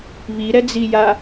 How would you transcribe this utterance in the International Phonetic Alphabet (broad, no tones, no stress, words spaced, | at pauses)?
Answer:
βiɾɛd͡zija